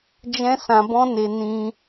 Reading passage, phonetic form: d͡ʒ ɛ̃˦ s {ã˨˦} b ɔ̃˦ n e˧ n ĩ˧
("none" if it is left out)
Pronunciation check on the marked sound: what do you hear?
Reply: ã˧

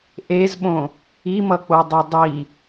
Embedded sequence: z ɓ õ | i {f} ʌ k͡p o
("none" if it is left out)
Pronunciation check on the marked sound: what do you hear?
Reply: m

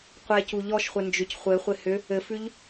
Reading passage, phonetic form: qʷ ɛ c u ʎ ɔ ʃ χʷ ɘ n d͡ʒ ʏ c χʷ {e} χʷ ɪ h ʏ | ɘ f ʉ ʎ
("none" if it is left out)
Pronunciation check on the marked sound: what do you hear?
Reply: ɘ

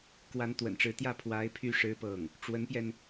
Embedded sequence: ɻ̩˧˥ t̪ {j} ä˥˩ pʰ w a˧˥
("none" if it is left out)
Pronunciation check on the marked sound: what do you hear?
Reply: j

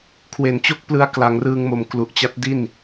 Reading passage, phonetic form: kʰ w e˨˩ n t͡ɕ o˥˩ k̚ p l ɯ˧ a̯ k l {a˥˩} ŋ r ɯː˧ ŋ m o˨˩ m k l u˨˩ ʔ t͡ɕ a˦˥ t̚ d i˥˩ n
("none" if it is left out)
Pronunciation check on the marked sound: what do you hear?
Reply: a˩˦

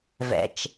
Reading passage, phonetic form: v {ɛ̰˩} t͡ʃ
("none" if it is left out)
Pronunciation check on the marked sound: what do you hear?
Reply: ɛ̰˩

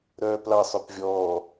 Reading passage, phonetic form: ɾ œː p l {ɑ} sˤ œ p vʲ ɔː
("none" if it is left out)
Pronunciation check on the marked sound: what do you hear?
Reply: ɑ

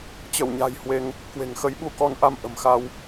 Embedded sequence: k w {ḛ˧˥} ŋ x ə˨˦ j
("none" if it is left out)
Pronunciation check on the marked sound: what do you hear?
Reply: e̤˨˩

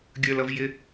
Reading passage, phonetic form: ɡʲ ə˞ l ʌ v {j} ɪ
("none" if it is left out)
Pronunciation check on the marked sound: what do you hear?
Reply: j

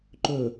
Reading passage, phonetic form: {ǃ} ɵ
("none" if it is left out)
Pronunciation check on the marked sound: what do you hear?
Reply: ǃ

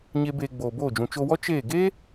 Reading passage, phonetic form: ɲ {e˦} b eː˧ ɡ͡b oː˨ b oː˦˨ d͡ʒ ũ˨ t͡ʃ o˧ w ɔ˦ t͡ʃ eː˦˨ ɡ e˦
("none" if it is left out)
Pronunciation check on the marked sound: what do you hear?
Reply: e˦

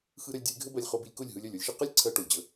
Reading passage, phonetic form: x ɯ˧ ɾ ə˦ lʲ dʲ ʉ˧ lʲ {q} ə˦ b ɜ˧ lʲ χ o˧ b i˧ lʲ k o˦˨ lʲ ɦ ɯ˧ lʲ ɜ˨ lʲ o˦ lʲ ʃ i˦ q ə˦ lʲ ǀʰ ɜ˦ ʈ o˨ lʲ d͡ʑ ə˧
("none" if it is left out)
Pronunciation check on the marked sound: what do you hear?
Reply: ɡʱ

